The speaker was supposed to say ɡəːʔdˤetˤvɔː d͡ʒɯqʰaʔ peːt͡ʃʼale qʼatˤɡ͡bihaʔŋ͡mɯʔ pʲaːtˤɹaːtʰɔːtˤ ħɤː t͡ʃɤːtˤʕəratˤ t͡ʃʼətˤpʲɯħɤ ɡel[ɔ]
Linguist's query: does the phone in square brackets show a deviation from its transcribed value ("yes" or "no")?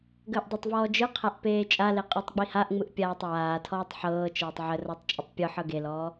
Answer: yes